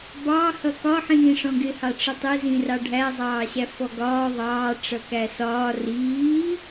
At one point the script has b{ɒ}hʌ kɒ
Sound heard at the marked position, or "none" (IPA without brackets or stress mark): ɑ